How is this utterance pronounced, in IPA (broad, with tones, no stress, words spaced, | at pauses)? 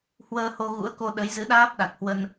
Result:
hwəː˧ho˧ɣṵ˧˥ə̯ko˧ ɗə˨˦j zɨ˨˦ɗaː˦˥p̚ ɗa˨˩k̚hwə˧n